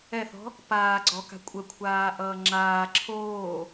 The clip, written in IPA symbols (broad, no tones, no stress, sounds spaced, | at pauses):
ɛ θ ɔ̤ | p aː ɡ͡ǀ ɔ k a̤ kʷʼ ə kʷʰ aː ʔ ʌː ŋ͡ǁ aː ǁʰ oː